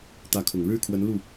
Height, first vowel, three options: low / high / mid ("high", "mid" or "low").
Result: low